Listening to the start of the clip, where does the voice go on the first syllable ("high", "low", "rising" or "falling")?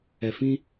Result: low